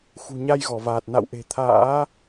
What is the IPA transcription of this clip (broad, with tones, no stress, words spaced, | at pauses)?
xṳ˨˩ɲa˧jɣɔ˧˩vaː˨˩t̚ na̰˧˨wʔe̤˨˩ t̪ʰa̰ː˧˥